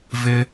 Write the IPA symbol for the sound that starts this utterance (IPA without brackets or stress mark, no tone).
v